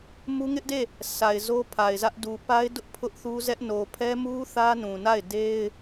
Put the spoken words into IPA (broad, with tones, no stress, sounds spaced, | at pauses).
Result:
m u˦ ŋ ɪ˦ ʔ d e˦˨ | sʰ a˨ ɪ̯ z o˦ pʰ a˨ ɪ̯ z ä˦ ʔ d u˨ p a˦ ɪ̯ d ʊ˦ ʔ pʰ ʊ˦ ʔ θ u˦ z ɛ˦ ʔ n o˨ pʰ ɛ˦ m u˦ θ ä˦ n ũ˨ n a˦˨ ɪ̯ d e˦ ɪ̯